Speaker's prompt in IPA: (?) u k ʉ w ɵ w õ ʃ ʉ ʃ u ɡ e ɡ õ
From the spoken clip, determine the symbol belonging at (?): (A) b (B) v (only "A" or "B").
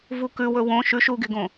B